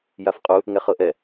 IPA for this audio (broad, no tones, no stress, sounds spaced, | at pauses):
j a f qʼ u | ŋ ɛ χ ɤ ʔ ɛ